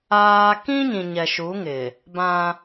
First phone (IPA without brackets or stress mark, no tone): aː